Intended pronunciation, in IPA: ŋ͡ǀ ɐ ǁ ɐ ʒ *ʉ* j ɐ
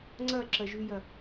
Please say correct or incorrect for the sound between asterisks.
correct